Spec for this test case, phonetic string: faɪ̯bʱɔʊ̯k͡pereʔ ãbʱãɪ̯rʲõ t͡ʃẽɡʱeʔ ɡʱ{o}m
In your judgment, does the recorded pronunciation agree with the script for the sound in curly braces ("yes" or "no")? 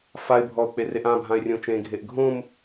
no